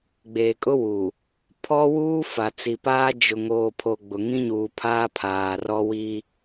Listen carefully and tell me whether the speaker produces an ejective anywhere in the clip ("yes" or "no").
yes